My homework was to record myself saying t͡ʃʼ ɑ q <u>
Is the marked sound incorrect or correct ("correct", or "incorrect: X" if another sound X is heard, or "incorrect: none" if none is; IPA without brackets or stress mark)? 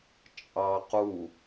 correct